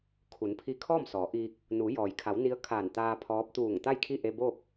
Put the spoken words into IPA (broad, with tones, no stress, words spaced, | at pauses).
kʰu˩˧npʰi˧ kʰɔː˥˨msɔː˩˧ʔiː˧k̚ | nuː˩˧jɔː˩jkʰa˩˧w ni˧˥ə̯kʰaː˧˩n t̪aː˧ pʰɔː˧˥p̚ t̪uː˧˩ŋ t̪a˥˨jkʰi˥˨ ʔe˧boː˥˨k̚